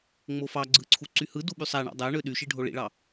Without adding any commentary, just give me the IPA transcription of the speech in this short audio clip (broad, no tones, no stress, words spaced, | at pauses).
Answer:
ŋ͡mofɑɡ͡ǀɯ ǀʰuǀyhɯdu ɓysˤæɳɑ̰ dˤæɳø ɗyʃi ɖʱoɭḭɭɑ